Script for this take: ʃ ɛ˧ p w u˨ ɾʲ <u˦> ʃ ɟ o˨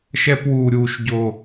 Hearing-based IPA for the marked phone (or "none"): u˨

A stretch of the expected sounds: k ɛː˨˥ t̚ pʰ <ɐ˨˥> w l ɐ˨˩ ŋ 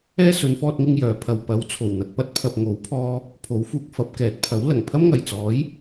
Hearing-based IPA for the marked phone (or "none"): ɐ˨˥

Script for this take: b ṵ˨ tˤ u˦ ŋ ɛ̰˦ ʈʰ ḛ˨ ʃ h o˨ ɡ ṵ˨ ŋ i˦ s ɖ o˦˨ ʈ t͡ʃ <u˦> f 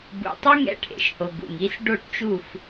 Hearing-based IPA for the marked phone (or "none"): u˦˨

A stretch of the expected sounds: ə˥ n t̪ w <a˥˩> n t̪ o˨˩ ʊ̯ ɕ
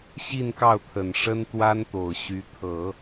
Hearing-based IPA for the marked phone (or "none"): a˥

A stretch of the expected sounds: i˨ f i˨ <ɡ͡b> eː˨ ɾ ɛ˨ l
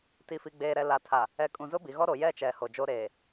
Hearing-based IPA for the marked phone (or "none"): ɡ͡b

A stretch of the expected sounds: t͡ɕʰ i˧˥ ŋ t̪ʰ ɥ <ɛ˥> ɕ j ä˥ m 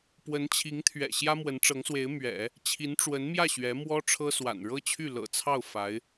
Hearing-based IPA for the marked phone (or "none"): ɛ̰˨˩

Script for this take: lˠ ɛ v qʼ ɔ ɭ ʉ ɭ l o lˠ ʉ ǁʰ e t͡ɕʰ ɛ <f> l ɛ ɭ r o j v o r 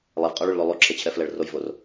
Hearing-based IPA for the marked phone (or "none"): f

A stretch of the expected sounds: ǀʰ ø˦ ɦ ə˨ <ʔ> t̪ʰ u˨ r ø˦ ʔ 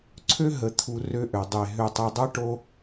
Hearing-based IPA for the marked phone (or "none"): none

